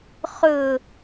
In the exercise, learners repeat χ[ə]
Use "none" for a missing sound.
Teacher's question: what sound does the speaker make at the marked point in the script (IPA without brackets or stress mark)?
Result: ɵ